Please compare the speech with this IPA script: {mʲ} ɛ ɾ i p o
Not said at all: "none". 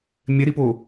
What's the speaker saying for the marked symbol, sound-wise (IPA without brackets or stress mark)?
mʲ